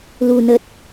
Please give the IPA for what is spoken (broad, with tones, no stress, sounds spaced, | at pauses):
l u˨˩ n ə˨˩ t̚